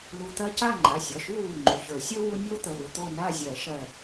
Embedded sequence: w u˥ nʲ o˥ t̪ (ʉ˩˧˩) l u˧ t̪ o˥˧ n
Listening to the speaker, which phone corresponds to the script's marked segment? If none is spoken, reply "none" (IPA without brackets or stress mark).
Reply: ə˩˧˩